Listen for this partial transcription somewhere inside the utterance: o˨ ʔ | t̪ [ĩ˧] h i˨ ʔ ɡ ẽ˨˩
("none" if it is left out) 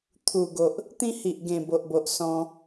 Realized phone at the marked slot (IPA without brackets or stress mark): ĩ˦